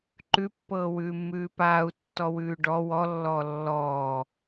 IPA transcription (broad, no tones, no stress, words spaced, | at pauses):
ǃʉpːɤːwʉːmːʉː paːu̯tːɔwʉː ɖɔ wɔlːɔː lːɔː